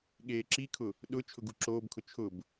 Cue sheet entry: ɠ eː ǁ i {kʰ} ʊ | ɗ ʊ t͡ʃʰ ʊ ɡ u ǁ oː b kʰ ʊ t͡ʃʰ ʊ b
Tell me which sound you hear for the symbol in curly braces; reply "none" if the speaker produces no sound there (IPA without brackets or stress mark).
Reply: kʰ